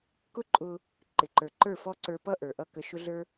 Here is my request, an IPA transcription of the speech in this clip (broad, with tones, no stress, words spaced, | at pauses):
kʊ˦ǃʼʊ˧ | ǃɪ˨ǃə˞˨ǃə˞˦˨ fɔ˦ǀə˞˧ pʌ˦ʔə˞˨ʔʌ˦˨ kə˧ʃʊ˦ɮə˞˦